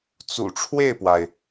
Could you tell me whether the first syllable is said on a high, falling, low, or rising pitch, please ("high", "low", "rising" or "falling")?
low